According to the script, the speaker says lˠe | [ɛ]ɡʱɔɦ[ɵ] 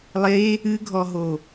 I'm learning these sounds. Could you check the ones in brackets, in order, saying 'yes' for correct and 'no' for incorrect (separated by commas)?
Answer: no, no